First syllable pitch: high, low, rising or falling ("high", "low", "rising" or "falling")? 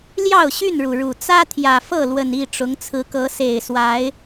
falling